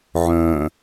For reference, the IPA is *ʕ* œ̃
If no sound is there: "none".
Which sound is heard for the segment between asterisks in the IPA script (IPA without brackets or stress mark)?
ʕ